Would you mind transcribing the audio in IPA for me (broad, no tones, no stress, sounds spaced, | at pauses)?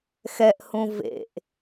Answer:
x ɛ ʔ h ũ v ḛ ʔ